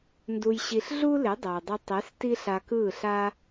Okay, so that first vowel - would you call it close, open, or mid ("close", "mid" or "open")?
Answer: close